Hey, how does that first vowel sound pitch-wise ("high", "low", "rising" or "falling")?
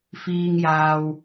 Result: high